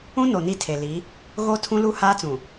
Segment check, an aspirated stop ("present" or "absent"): present